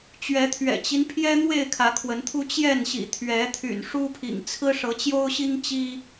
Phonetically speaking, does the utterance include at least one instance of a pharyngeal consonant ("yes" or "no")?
no